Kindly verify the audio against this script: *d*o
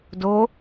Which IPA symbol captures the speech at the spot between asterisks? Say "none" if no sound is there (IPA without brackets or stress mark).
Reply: d